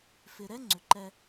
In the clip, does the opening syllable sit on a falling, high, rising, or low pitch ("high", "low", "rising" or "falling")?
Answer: low